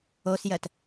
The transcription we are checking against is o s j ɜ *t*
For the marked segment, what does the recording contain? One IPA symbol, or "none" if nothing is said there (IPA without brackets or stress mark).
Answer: t